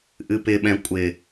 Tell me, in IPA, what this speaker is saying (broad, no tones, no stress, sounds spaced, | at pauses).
ʔ ɨ p ɪ ɓ ɛ̃ kʷʼ ɪ